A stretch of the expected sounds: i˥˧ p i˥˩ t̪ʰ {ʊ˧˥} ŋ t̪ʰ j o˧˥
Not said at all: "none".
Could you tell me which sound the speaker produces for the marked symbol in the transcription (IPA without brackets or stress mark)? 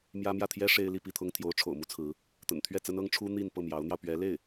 ʊ˥